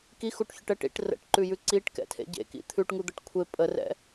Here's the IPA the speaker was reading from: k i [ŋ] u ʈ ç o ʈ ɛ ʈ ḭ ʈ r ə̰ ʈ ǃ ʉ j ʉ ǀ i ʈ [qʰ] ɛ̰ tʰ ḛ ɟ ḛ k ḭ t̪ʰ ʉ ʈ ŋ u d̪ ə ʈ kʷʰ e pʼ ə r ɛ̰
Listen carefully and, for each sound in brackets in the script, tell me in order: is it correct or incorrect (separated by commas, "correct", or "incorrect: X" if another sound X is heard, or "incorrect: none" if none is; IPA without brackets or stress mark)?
incorrect: x, incorrect: k